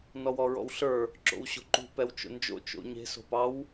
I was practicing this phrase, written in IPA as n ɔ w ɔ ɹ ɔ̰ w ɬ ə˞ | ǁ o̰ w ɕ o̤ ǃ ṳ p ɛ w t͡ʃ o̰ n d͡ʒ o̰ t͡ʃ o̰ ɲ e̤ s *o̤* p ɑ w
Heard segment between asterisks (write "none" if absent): o̤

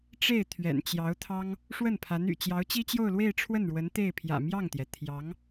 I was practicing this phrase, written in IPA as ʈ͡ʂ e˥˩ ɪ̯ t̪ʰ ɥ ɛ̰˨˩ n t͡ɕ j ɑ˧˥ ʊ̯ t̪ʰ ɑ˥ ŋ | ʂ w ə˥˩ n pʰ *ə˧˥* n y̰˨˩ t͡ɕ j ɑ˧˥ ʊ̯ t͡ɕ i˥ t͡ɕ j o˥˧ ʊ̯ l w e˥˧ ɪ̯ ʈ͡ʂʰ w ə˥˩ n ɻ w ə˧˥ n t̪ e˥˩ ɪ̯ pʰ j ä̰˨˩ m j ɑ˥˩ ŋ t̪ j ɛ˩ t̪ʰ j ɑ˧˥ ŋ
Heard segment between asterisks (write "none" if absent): a˧˥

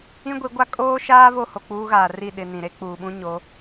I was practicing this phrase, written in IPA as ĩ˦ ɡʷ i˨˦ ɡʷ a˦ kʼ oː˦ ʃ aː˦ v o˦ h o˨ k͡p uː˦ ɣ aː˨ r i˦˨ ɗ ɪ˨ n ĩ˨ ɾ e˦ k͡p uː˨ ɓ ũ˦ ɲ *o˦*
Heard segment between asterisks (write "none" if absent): o˨˦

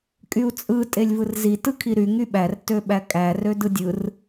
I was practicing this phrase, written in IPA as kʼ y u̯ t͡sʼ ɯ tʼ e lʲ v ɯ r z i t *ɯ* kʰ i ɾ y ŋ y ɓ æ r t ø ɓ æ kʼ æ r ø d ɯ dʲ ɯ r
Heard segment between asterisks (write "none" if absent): ɯ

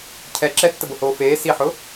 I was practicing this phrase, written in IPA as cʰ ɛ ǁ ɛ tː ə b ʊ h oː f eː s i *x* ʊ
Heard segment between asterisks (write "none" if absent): ħ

